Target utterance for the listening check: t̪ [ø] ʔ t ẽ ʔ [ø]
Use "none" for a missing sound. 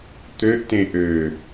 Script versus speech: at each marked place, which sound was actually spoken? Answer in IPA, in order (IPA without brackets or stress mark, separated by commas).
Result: ø, ø